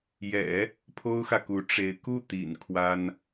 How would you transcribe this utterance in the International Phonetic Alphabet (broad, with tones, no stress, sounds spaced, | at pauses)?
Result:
j ɛ̰˨˩˦ | pʰ o˥ ʊ̯ x ä˨ k u˧˥ ʈ͡ʂ e˧˥ ɪ̯ k u˥˩ t̪ ḭ˨˩ n kʰ w a˥ n